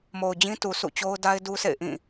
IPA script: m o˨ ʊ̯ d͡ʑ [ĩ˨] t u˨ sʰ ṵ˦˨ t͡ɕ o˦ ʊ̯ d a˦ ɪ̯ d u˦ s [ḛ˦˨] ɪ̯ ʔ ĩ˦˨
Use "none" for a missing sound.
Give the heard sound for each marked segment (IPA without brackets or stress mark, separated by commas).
ĩ˦, ḛ˦˨